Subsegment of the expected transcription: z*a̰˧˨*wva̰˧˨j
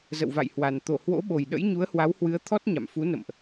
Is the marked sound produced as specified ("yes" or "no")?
no